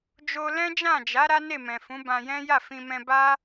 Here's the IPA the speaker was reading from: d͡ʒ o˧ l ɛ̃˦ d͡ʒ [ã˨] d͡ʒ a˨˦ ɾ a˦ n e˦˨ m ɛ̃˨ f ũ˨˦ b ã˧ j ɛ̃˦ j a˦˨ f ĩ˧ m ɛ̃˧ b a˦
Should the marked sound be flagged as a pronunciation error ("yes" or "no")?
yes